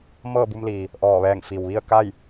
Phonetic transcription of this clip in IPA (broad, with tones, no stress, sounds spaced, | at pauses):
m ɤː˥˨ b u˧ m l iː˩ | ʔ ɔː˧˩ ʋ ɛː˧˩ ŋ f i˩ w ʋ i˥˨ ə̯ k a˥˨ j